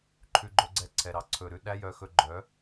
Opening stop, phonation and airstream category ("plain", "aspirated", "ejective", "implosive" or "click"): click